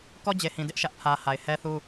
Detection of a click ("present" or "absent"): absent